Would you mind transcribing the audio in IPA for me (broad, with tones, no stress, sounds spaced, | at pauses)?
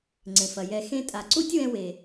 ŋ͡ǀ ẽ˨ f ɐ˨ j ɛ˧ x ẽ˦ tʼ a˨ ǀ u˦ tʲ w ɛ̃˧ w e˨